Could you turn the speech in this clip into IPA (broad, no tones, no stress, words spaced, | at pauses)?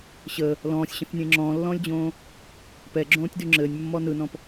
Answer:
ɕə | lɔ̃ːsʲɕə̃θnʲẽ ŋ͡ǁɔ̃ːlːɔ̃ːlʲd͡ʑõː | pɛɡ͡ǁõːtʲdy ŋ͡ǁɘːnʲmːɔ nɯnɔ̃p